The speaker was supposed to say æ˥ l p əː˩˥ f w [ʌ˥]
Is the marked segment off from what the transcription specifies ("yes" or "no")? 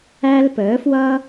no